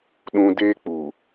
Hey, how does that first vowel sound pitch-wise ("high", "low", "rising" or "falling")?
high